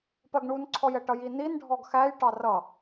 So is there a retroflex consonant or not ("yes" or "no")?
yes